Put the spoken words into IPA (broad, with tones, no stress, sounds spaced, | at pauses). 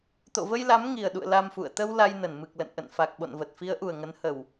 t̪ o̰˧˨ v ə˧ j l a˨˦ m ŋ i˨˩ ə̯ ɗ ṵ˧˨ ə̯ l a˧ m f ṵ˧˨ ə̯ t̪ ə˧ w l a˧ j n ə˧˩ n m ɨ˨˩ k̚ l ə̰˧˨ n ʔ ə̰˧˨ n f a˨˩ k̚ ɓ o̰˧˨ n v ə˨˩ t̚ f i˨˦ ə̯ ʔ u˨˩ ə̯ ŋ ə˨˦ n h ə˨˩ w